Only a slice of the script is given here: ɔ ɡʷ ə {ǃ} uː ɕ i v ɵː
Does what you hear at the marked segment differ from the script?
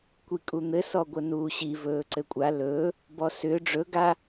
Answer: yes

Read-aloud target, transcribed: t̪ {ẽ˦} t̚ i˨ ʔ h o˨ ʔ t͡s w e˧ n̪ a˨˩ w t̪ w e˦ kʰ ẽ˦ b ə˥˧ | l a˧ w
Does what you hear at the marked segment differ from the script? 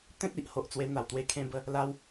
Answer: no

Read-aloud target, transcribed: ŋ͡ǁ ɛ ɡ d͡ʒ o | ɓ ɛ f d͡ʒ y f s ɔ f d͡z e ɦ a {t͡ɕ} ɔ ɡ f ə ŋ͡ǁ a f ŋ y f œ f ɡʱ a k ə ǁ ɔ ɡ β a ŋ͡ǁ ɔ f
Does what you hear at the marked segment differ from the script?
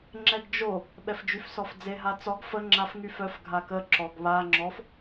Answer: yes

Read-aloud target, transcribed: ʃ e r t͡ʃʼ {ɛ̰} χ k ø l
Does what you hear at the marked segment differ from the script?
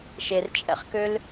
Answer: no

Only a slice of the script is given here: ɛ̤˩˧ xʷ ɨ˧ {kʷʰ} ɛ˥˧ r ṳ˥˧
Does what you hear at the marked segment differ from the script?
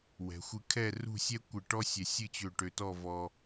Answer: yes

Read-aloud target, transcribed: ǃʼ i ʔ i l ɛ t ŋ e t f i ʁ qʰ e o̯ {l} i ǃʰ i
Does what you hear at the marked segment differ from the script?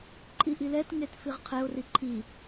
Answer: yes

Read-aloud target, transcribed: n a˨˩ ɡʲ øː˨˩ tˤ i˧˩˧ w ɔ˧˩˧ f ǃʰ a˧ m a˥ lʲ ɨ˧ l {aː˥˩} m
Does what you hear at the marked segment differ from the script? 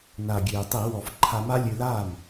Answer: no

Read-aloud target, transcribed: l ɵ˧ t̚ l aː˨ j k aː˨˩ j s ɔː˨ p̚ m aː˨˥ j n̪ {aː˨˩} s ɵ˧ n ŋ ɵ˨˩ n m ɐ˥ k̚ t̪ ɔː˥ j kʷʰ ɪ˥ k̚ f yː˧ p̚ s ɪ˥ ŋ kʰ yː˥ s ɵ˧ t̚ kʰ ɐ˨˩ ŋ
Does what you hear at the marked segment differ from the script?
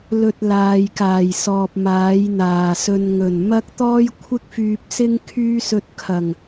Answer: no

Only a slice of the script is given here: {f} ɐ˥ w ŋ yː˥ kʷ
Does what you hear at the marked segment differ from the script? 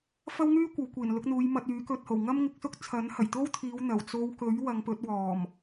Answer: no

